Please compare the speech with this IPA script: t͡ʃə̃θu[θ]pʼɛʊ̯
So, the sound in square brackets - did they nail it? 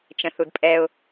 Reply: no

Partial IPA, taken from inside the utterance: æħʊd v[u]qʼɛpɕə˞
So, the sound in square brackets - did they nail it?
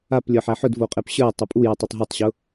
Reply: no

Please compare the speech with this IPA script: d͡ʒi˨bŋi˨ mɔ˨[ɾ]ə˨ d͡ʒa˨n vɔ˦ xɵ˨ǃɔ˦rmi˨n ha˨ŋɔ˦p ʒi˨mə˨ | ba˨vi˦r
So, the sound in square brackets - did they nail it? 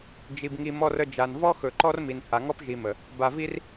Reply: no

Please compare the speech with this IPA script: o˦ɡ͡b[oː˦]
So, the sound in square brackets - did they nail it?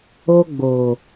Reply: no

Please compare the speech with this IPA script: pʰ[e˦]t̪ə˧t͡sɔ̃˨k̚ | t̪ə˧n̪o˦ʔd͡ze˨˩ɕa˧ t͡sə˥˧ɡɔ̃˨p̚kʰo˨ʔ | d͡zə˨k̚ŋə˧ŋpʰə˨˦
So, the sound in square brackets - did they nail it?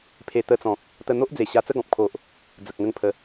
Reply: no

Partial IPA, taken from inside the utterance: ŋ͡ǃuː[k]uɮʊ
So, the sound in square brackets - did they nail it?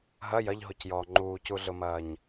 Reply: no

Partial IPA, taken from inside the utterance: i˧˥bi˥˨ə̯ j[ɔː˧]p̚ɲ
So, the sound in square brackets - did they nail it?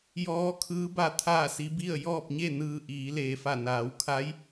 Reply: no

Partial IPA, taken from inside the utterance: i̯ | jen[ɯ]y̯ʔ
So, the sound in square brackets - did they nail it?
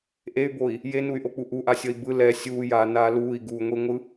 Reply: no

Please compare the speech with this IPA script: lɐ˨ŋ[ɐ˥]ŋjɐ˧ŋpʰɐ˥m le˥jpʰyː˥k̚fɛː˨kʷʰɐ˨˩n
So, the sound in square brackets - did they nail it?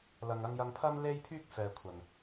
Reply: no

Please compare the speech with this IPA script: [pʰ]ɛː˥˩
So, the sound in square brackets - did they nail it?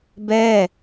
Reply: no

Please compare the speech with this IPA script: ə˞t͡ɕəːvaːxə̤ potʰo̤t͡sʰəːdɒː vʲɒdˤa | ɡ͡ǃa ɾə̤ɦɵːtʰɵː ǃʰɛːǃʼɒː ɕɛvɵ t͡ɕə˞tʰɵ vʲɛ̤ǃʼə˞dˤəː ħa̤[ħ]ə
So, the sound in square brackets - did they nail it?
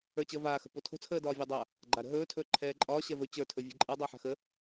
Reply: no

